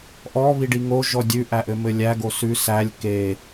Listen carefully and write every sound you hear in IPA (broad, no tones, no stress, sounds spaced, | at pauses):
ʔ ɔ β i ɖ i ŋ o ʒ ɔ dʲ ʉ ʔ æ ʔ ɘ m ɘ lʲ æ ɡ o s ʉ s æ lʲ k e